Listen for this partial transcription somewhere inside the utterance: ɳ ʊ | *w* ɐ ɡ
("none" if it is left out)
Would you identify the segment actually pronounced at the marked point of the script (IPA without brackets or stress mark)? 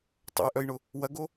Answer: w